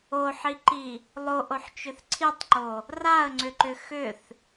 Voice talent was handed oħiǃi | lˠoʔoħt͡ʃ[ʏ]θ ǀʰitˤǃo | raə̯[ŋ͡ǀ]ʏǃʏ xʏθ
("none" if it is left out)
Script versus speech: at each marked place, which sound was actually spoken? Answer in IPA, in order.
ʏ, ŋ͡ǀ

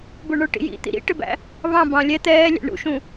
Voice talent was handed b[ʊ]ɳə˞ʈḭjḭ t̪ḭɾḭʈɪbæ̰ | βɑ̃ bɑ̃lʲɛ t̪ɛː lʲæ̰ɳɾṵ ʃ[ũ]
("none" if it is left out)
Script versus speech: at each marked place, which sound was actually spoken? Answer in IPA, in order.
ʊ, ũ

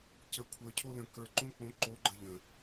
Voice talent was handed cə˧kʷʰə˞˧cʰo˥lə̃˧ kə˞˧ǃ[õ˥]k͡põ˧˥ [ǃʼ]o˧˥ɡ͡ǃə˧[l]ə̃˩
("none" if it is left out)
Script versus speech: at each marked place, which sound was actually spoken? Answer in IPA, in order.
õ˥, ǃ, ʎ

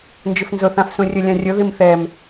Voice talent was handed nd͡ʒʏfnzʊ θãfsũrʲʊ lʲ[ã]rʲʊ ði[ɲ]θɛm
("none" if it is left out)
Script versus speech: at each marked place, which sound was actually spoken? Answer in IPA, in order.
ã, m

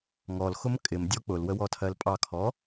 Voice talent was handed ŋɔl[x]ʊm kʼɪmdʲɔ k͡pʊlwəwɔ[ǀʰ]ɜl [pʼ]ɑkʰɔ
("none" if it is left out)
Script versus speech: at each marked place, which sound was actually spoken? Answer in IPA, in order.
x, tʰ, pʼ

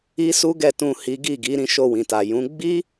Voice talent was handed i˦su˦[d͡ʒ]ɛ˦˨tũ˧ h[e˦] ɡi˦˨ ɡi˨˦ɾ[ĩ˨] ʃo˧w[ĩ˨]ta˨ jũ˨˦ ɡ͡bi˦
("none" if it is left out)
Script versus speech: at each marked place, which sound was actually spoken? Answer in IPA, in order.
ɡ, i˦, ĩ˧, ĩ˨

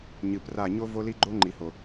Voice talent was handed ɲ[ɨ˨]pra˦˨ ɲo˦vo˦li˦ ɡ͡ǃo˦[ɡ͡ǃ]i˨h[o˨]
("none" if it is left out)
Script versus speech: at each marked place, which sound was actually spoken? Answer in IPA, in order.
ɨ˨, ŋ͡ǃ, o˨

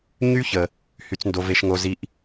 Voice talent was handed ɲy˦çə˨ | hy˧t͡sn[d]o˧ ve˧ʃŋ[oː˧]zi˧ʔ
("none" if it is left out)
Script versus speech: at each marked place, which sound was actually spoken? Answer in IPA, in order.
d, o˧

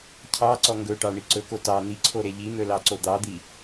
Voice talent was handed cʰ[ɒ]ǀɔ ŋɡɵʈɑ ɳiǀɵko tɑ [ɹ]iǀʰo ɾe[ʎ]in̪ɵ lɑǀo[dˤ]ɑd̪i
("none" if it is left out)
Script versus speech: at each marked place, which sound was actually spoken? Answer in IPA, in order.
ɑ, n̪, ʎ, d̪

